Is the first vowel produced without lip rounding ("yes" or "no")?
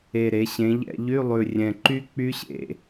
yes